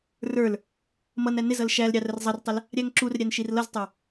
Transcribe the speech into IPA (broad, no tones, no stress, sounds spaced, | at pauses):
r ə˞ l | m ʌ n æ n ɪ z ʌ l ʃ æ l ɾʲ ɑ r ə r zˤ ʌ r tˤ ə l | ɾʲ æ ŋ ǁ u r ɾʲ æ n ʃ i r l ʌ z tˤ ə˞